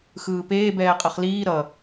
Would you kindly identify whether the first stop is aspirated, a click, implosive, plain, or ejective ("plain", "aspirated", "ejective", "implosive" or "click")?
plain